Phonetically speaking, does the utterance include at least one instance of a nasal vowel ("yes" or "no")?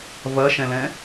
yes